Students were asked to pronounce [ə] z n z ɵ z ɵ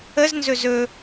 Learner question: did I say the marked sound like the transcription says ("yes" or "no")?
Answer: yes